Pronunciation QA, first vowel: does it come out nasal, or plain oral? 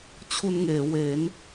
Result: oral